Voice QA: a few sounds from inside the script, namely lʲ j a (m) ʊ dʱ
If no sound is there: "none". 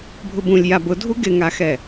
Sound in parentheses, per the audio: b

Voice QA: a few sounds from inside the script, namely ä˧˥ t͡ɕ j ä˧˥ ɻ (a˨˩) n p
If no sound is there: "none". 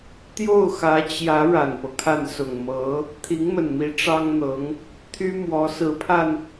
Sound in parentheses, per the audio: a˨˩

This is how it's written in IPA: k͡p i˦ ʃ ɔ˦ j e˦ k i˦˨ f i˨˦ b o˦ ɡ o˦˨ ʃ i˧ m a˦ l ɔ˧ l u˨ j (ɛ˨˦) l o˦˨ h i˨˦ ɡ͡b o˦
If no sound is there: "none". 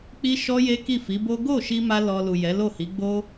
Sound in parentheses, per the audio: ɛ˨˦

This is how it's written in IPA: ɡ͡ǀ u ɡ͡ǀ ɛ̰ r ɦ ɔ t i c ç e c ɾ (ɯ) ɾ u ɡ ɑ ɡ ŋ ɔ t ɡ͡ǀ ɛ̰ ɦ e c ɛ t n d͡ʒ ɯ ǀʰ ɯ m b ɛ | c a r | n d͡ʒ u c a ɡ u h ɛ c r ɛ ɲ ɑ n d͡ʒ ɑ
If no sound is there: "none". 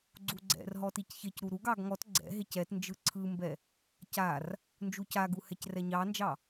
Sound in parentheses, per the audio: u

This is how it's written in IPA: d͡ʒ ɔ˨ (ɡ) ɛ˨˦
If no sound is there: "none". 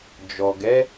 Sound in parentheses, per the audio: ɡ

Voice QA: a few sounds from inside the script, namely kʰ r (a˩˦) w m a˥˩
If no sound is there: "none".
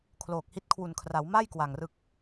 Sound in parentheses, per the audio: a˩˦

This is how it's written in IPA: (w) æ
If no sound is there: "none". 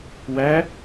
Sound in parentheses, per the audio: w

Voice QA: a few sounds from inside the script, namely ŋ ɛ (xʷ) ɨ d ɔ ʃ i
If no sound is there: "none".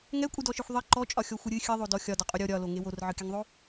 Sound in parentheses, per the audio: kʷʼ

